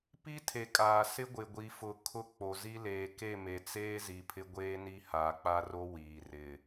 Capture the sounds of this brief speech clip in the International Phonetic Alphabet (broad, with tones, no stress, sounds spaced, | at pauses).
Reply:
p i˦ tʰ e˨ kʼ aː˨ s ɪ˦ ɡʷ ɪ˨ ɡʷ i˨ f ʊ˨ kʰ ʊ˦ k͡p o˨ z i˦ l eː˨ k e˦˨ m e˨ t͡s eː˦ z i˨ pʰ ɪ˦ ɡʷ eː˦ n i˦ h aː˨ k͡p a˦ r o˦ w iː˨ r ɪ˨